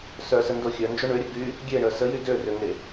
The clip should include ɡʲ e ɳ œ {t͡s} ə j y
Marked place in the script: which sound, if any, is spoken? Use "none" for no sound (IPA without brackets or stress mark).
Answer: s